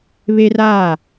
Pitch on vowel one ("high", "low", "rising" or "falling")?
high